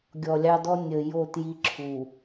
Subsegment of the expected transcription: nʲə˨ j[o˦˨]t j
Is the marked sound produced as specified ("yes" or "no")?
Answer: yes